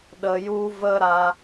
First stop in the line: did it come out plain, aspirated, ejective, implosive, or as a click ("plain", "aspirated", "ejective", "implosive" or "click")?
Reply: implosive